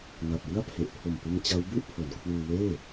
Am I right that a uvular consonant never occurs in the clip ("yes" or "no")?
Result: yes